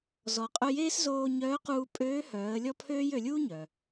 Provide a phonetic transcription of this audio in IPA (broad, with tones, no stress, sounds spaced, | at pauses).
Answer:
z ɔ˩ qʼ œ˧ j eː˥ s z oː˧ ɲ œː˧˥ q uː˧ pʼ øː˧˥ h œː˩˧ ə̯ lʲ ɔ˥ pʰ øː˥ j ø˩˧ lʲ uː˥ ɲ œ˩